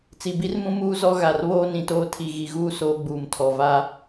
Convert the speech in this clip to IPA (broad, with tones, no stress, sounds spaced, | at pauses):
t͡s i˨ b i˦ r m ũ˦ m uː˦ z ɔ˦ ɣ a˨ r β oː˦ n ĩ˨ t oː˦ tʰ i˨ ɣ i˨ ɣ uː˦ s oː˦ ɡ͡b uː˨ m tʰ ɔ˨ v a˦